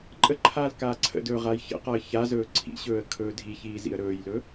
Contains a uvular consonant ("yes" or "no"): yes